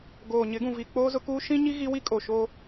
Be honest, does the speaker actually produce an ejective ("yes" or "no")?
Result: yes